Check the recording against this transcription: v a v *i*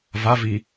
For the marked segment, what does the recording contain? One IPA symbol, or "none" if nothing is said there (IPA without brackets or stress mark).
i